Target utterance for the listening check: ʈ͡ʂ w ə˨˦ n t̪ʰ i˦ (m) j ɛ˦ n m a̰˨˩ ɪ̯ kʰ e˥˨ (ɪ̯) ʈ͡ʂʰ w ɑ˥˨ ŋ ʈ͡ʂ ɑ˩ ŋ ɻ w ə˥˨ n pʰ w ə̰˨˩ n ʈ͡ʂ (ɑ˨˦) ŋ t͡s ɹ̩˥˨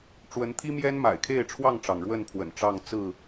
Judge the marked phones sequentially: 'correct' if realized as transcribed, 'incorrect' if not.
correct, correct, incorrect

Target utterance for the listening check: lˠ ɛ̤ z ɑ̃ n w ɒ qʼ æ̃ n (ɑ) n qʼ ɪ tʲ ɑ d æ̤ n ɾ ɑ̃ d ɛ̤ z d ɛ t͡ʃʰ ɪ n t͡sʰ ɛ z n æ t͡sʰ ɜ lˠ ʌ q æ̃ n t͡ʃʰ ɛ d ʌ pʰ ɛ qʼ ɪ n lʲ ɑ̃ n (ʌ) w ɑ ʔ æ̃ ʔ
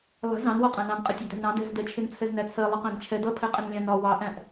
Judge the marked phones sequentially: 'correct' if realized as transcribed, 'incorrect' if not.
incorrect, incorrect

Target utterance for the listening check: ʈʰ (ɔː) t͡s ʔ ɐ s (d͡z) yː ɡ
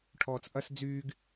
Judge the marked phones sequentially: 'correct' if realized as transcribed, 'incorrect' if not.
correct, correct

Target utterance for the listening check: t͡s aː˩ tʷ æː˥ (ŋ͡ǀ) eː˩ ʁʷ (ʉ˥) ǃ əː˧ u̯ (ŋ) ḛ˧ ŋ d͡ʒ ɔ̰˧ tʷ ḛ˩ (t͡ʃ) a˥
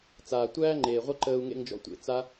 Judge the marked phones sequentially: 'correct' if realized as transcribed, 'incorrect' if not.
incorrect, incorrect, correct, incorrect

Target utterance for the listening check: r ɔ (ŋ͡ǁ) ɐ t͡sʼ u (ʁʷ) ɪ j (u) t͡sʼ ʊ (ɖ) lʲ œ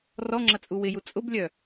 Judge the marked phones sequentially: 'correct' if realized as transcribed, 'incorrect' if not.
correct, incorrect, correct, incorrect

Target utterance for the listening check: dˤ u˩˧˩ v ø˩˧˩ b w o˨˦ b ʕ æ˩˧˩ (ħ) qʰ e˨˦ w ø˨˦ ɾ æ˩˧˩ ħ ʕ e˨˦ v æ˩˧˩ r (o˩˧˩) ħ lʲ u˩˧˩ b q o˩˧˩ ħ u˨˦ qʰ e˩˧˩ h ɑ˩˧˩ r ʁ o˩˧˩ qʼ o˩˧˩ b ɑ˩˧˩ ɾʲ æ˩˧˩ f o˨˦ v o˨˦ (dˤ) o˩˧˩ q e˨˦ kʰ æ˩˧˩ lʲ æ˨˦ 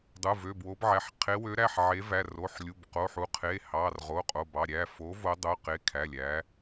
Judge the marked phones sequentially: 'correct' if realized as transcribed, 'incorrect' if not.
correct, correct, correct

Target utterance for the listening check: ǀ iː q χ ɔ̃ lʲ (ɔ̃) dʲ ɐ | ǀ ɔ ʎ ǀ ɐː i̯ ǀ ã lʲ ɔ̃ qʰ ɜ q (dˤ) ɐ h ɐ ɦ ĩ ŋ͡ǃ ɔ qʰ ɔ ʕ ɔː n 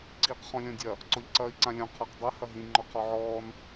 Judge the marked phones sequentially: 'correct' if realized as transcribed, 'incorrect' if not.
correct, correct

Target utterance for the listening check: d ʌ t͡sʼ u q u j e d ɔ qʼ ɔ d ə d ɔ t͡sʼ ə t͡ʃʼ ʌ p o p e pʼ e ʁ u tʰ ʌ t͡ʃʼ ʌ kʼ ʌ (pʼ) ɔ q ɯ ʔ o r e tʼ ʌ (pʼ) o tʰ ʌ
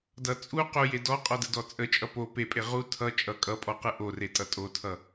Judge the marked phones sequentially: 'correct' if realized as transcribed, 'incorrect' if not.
correct, incorrect

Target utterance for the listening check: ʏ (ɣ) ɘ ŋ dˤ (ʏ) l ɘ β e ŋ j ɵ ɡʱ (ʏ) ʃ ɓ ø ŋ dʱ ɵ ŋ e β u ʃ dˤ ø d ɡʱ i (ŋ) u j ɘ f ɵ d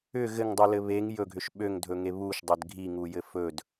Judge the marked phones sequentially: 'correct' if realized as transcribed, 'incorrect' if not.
correct, incorrect, correct, correct

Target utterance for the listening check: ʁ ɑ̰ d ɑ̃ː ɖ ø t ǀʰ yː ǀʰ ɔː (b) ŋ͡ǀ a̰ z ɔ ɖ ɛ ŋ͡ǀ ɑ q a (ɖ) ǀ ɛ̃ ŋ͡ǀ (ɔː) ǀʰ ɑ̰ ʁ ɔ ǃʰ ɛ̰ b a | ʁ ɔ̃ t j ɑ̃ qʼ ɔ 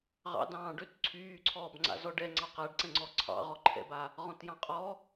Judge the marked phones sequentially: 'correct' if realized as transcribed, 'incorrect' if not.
correct, correct, incorrect

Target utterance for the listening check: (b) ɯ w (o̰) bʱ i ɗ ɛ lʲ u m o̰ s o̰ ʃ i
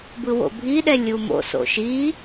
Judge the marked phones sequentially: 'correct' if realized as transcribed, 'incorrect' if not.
correct, correct

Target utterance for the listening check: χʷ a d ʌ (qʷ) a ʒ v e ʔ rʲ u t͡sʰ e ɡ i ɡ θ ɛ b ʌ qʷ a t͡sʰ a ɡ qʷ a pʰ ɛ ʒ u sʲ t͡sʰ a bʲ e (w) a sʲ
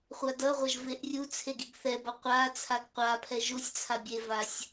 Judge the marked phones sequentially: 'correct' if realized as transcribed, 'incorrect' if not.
incorrect, incorrect

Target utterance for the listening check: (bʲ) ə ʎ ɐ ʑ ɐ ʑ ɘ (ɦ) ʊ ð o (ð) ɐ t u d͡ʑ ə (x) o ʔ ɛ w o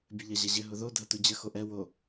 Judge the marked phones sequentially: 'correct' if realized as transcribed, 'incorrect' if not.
correct, correct, incorrect, correct

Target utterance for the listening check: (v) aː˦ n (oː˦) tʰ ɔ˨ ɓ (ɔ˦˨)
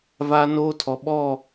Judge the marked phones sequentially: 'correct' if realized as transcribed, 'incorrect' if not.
correct, correct, correct

